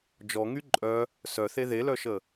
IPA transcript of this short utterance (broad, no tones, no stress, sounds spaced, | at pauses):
d͡ʒ ɔ ŋ y ǃʼ œ | s œ θ e ð e l œ ʃ ə